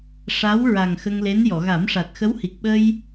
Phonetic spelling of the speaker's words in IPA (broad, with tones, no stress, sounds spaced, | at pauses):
ʂ a˧˥ w ɹ a˨˩ ŋ x ə˧ ŋ l e˧˥ n j ɔ˨˩˨ ɣ a˨˩˦ m ʂ a˨˩ t̚ x ə˧˥ w h i˨˩ k̚ ɓ ə˧ j